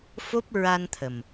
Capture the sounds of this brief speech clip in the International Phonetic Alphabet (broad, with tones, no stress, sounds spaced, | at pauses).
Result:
f o˦˥ p̚ ɹ a˧ n t̪ʰ ə˨˩ m